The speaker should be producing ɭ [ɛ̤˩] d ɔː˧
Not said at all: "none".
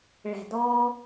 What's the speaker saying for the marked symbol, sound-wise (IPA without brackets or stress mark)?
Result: ɛ̤˩